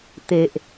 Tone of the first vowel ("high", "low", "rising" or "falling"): low